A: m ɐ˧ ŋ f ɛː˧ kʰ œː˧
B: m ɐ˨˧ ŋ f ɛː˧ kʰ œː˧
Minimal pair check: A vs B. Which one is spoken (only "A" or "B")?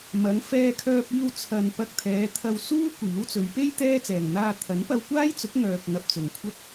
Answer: B